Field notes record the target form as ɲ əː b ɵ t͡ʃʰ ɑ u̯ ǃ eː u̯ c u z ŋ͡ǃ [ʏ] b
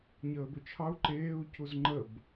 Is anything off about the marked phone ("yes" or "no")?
yes